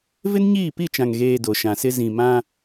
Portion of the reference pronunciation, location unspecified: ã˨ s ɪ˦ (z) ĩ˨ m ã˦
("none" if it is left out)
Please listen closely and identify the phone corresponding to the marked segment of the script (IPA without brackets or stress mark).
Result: z